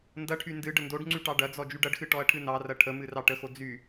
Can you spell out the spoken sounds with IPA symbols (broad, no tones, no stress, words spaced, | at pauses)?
ndɐʈʰy ndɨ ɖəndoɖŋ͡ǀy ʈɑɖɐd͡zɔ d͡ʒyɖɐɖxɨ ʈɔɐ̯ʈʰɨnɑrɐ ʈʰəmɨ rɑʈəxo d͡zy